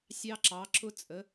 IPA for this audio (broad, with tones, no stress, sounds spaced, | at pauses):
sʲ ɑ˧ ǁ ɑ˩˧ ǁ ʊ˧ t͡sʼ ə˩˧